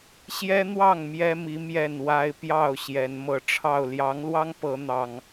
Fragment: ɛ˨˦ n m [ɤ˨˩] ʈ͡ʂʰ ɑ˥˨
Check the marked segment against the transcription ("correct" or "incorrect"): correct